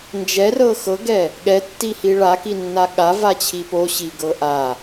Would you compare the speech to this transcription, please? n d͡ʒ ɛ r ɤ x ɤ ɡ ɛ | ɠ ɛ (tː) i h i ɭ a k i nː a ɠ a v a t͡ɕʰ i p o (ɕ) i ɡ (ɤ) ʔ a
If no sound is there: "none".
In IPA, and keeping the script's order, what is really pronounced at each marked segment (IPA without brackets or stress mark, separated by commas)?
tː, ɕ, ɤ